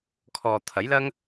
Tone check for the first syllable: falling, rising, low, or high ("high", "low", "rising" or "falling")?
low